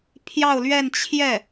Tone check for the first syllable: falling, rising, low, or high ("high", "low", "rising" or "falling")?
falling